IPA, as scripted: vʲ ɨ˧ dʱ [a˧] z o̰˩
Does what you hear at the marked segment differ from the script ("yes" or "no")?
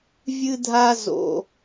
no